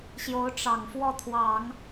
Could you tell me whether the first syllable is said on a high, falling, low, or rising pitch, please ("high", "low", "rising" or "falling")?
rising